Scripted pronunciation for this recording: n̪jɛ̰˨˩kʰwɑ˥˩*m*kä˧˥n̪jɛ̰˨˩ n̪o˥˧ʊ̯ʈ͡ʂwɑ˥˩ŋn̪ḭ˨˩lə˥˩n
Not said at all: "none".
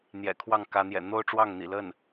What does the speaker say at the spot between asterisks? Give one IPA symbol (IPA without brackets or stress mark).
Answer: ŋ